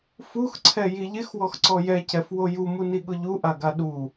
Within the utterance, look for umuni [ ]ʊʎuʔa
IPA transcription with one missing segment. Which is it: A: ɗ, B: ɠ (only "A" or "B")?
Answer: B